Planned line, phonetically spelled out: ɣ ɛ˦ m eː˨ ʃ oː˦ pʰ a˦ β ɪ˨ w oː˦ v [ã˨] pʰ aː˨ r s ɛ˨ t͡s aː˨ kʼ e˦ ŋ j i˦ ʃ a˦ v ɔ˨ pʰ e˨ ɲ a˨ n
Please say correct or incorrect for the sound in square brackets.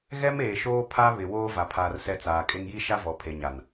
incorrect